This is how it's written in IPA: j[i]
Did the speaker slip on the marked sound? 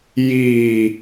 no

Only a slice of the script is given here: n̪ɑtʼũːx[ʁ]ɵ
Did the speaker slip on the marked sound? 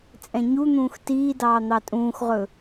no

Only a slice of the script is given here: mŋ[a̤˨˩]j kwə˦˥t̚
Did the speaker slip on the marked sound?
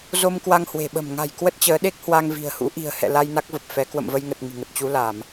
no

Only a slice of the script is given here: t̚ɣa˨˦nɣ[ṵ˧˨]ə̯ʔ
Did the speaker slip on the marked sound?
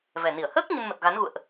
no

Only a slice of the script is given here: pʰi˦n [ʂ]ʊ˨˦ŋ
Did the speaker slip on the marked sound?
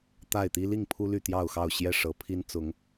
yes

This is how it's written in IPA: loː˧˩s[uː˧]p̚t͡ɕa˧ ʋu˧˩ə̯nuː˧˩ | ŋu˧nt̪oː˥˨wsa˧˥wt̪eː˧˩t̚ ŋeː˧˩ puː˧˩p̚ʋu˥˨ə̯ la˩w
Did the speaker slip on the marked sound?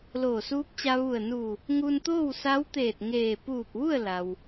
yes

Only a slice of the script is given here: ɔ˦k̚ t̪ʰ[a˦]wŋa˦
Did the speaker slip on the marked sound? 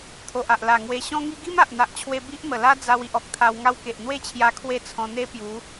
yes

